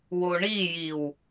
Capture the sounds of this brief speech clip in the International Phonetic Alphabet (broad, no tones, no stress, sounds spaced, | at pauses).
w o ɳ i j i w